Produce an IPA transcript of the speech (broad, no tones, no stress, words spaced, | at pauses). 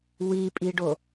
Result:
wipʼiɖo